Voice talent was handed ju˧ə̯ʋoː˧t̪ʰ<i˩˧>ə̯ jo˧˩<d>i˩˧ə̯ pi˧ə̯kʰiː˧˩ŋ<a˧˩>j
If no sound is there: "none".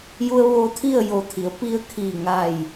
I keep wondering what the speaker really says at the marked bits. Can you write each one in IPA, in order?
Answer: i˥˨, t̪ʰ, a˧˩

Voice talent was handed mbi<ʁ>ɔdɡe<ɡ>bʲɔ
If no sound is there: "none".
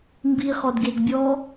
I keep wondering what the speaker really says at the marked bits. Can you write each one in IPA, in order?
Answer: χ, ɡ

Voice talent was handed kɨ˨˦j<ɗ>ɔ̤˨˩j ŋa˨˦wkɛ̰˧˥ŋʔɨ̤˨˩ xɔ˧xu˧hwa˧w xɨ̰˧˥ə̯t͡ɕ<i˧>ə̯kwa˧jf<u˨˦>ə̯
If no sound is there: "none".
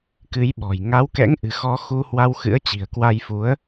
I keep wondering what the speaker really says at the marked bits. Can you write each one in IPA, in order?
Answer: ɓ, i̤˨˩, u˨˦

